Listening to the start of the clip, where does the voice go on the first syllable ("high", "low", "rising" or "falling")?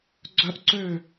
high